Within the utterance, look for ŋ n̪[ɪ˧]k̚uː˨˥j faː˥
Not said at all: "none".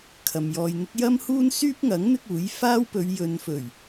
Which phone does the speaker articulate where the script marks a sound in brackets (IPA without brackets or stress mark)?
ɪ˥